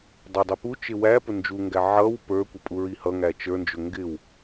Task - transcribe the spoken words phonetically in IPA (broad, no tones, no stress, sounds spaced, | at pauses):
dˤ ʊ dˤ i p u t͡ʃ ɪ w æ p ʊ n d͡ʒ u ŋ ɡ æ ʕ ʌ w p ə˞ kʷ ʌ pʼ u ɹ i h ʌ ŋ æ t͡ʃ ə˞ n d͡ʒ ʊ ŋ ɡ ɪ w